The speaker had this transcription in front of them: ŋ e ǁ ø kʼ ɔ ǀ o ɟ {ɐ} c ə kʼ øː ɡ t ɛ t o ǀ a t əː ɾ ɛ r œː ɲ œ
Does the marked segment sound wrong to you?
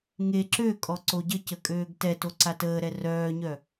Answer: yes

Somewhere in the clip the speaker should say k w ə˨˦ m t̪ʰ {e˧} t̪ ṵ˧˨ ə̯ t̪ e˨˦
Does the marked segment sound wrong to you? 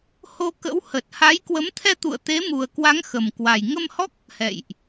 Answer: yes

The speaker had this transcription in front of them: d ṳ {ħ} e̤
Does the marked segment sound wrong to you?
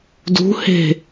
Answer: yes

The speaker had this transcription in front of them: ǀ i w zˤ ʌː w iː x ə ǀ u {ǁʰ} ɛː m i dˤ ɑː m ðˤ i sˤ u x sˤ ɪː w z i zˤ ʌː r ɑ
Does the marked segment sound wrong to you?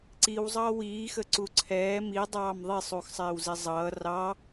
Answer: yes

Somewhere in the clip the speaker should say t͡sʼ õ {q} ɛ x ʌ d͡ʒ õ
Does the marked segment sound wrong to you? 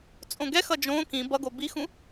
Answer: yes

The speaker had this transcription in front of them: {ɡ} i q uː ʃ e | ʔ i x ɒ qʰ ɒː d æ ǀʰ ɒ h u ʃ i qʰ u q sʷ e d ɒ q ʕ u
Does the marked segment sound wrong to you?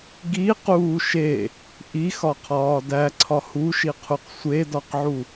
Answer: no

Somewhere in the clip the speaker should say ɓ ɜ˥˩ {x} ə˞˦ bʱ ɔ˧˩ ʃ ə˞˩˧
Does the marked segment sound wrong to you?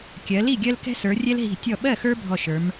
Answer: no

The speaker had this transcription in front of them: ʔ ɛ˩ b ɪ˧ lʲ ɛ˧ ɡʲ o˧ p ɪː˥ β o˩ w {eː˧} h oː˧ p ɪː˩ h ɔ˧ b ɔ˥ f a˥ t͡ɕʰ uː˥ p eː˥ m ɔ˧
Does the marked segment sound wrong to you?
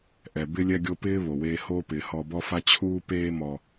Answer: no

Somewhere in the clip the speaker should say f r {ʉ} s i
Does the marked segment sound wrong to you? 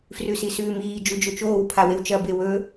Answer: no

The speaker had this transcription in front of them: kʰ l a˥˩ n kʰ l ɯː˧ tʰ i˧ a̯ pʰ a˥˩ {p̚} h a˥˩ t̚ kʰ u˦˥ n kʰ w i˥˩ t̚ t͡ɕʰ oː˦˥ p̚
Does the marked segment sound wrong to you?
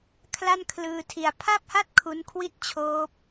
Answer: no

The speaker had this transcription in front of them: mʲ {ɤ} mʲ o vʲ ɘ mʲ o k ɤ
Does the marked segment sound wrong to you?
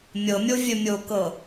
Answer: no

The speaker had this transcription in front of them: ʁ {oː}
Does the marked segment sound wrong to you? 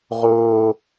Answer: no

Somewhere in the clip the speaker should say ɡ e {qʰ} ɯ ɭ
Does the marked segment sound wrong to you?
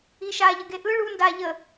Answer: yes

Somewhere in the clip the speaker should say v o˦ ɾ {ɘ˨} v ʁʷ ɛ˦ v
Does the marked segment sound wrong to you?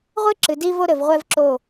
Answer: no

